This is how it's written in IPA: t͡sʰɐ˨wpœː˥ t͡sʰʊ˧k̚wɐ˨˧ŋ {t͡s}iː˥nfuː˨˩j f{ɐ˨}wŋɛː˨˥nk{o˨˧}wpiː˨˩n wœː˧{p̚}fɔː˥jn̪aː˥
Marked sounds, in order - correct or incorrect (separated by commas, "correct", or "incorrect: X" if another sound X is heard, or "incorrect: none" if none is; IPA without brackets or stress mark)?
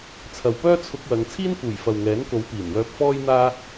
incorrect: t͡sʰ, correct, correct, correct